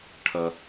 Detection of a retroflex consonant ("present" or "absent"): present